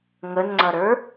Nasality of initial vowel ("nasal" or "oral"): oral